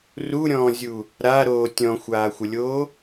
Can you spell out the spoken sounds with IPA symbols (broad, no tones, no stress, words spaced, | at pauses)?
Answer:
ruɾʲɔ̃ːzʲu | ɾaɾoː tʲɔ̃xʷaːxʷəlʲoː